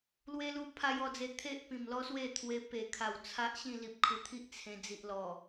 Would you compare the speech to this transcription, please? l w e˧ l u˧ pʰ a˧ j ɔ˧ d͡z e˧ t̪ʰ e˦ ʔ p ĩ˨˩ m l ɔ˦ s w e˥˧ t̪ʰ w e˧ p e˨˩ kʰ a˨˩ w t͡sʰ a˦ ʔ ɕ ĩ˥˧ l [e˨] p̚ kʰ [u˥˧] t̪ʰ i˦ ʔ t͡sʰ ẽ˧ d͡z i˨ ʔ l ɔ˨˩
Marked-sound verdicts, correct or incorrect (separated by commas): incorrect, incorrect